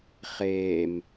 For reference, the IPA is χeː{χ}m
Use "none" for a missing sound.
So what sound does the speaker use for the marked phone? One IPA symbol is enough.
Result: none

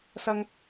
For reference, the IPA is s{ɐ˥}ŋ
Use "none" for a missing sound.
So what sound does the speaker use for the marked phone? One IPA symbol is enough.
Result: ɐ˥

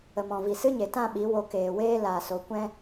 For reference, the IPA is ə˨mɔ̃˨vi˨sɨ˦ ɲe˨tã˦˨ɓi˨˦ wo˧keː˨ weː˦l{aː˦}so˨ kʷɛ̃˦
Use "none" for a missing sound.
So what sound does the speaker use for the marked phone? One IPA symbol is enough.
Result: aː˨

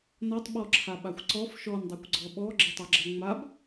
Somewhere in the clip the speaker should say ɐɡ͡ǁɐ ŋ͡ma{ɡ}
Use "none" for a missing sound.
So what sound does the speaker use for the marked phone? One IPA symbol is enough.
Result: b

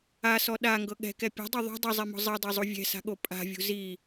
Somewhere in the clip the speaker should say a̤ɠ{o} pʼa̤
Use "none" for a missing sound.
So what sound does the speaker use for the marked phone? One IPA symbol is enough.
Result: o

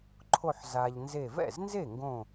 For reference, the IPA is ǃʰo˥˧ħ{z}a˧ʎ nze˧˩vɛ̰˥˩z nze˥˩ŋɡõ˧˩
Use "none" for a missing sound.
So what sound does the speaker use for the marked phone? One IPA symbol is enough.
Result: z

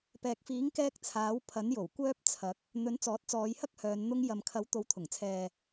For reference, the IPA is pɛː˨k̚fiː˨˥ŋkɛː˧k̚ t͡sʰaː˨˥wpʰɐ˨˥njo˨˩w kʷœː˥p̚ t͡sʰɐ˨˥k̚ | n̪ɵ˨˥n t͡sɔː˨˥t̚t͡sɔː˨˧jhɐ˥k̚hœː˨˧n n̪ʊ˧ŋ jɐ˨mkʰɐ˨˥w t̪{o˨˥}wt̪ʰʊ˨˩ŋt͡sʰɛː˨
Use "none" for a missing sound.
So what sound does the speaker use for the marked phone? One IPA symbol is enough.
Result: o˨˥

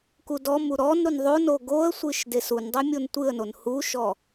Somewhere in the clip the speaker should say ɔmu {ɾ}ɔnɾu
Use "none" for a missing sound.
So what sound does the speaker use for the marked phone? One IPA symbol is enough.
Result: ɾ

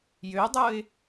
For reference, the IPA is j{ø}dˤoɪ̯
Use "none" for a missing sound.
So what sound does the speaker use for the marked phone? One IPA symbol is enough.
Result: ø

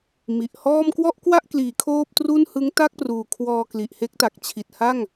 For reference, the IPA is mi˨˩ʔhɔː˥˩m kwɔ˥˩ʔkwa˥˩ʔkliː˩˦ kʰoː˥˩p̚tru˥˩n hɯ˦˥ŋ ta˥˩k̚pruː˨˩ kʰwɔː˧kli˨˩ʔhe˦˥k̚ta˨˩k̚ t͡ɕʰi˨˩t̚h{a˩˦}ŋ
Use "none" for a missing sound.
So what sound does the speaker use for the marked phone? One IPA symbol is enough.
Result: a˥˩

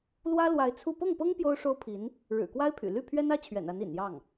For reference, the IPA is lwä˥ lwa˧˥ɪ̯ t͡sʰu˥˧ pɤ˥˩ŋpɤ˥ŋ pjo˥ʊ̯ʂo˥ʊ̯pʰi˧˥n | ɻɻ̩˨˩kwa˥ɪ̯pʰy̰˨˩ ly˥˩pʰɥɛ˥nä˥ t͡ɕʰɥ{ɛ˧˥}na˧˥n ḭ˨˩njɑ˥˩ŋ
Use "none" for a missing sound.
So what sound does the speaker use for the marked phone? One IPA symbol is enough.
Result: ɛ̰˨˩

